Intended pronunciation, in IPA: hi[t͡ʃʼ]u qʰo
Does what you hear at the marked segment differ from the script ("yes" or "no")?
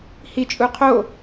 no